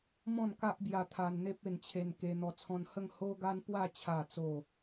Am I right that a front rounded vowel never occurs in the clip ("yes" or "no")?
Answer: yes